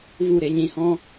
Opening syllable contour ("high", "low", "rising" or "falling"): falling